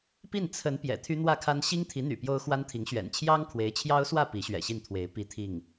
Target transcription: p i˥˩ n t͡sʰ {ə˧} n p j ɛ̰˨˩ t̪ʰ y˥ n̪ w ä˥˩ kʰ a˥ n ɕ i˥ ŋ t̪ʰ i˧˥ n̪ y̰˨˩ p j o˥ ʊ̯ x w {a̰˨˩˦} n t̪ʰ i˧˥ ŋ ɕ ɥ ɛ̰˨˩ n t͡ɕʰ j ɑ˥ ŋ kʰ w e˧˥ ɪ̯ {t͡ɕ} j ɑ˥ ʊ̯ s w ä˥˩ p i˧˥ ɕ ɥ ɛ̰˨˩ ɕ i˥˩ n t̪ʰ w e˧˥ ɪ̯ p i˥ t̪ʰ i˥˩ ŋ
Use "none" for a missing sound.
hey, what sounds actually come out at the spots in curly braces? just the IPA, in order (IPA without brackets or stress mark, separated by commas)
ə˧˥, a˥, t͡ɕʰ